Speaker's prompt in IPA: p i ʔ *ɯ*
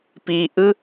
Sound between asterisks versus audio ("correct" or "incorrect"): correct